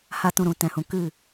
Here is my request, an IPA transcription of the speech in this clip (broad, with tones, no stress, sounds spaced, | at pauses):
h a˦ t ũ˧ ɾ ũ˨ t ɛ̃˨ h ũ˨ k ɨ˦˨